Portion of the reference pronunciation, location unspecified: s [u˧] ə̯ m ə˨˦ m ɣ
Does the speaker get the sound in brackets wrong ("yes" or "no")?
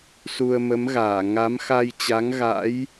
no